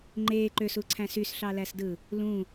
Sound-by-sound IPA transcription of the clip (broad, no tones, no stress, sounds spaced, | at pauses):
ŋ͡ǃ e ǃ ø s u ǀʰ æ̃ s y s ɬ ɑ l æ s d ɯ | l ũ